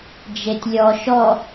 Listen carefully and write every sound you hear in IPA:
d͡ʒ e tʲ lʲ ɔ ʃ ɔ

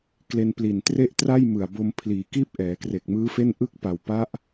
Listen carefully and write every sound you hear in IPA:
k l e˧ n p l i˨˩ n t r e˥˩ ʔ t r a˥˩ j m ɯ˨˩ a̯ b o˧ m pʰ l iː˩˦ k iː˥˩ p̚ ʔ ɛː˩˦ k r e˨˩ k̚ m ɯː˦˥ f e˥˩ n ʔ ɯ˥˩ k̚ p a˨˩ w p a˦˥ ʔ

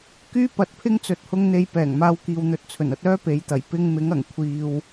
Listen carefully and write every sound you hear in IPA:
k yː˥ p ɐ˨˥ t̚ pʰ ɪ˥ ŋ t͡s ɵ˨ t̚ h ʊ˧ ŋ n̪ e˧ j p ɛː˨˩ ŋ m aː˧ w k iː˨ w n̪ ɵ˧ t̚ t͡sʰ ɵ˨˩ n ɐ˧ t̚ œː˥ p e˨˥ j t̪ ɐ˨˩ j p ɪ˧ ŋ m ɪ˨˥ ŋ ɐ˨˩ ŋ kʷʰ iː˧ w

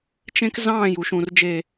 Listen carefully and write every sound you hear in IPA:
t͡ʃ ẽ˦ k z ɑ̃ː˦˨ j u˨ ʃ ũ˨ r d͡ʒ e˨

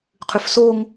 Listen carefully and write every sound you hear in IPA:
qʰ ʉ f s o ŋ

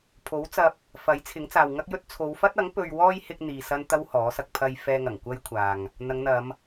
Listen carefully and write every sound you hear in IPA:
pʰ o˨˥ w t͡s ɐ˧ p̚ | f ɐ˨˥ j t͡sʰ ɪ˨˥ ŋ t͡s aː˨ w ŋ ɐ˥ k̚ j ɵ˥ t̚ t͡sʰ o˨˧ w f ɐ˥ t̚ ɐ˨˥ ŋ p ɵ˨ ɥ w ɔː˧ j h ɪ˥ k̚ n̪ iː˨ s ɐ˥ n t̪ ɐ˥ w h ɔː˨˥ s ɐ˧ k̚ pʰ ɐ˧ j f ɛː˧ ŋ ɐ˨˩ ŋ kʷ ɐ˥ j kʷʰ aː˨ ŋ | n̪ ɐ˨˧ ŋ n̪ ɐ˨˧ m

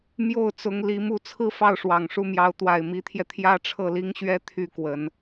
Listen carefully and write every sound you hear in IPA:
m j o˥˩ ʊ̯ t͡s ʊ˧˥ ŋ l i˧˥ m u˥˧ t͡sʰ ɹ̩˥˧ f ɑ˥˩ ʊ̯ ʂ w ɑ˨˩ ŋ ʂ u˥˩ m j ɑ˧˥ ʊ̯ t̪ w a˨˩ ɪ̯ m i˧˥ t̪ʰ j ɛ˧ t̪ʰ j ä˥ ʈ͡ʂʰ ɤ˥˩ l i˥ ŋ ɕ ɥ ɛ˥ t̪ʰ y˥˩ k w ə˨˩˦ n

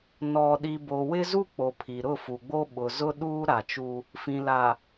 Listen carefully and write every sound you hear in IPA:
n ɔ˨ ɗ i˨ b o˨ w ɪ˦ z u˦ k͡p o˨ pʰ i˨ ɾ ʊ˦˨ f u˨ ɡ͡b o˦ ɓ ʊ˨ z ʊ˦ ɗ uː˦ ɾ a˨ t͡ʃ u˦ | f ĩ˨ l a˨

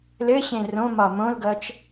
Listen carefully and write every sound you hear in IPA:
l ɘ ɕ ẽ r õ m ɒ m õ l ɡ ʌ t͡ʃ

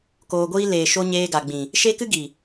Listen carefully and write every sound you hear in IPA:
k oː˧ ɡʷ iː˦ l eː˨ ʃ o˧ ɲ eː˧ ɡ a˨ ɡ͡b ĩ˨ | ʃ e˦ k ɨ˦ ɡ i˨

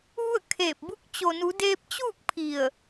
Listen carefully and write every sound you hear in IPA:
ʋ u˥˨ ə̯ kʰ eː˧˩ p̚ b u˧ k̚ t͡ɕ o˩ n u˩˧ d eː˧ p̚ t͡ɕ uː˥˨ k̚ pʰ i˧˩ ə̯

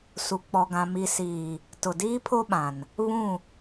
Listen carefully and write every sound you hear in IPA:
s u˨ k͡p ɔ˨ ɡ ã˨ m i˨ s iː˨ | t ʊ˨ d iː˦ pʰ o˦ ɓ ã˨ n | β ũ˦˨

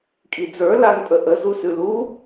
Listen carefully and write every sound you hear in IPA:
kʼ i d͡z ə˞ l a n pʼ ə ʔ ə z u s ʉ l u

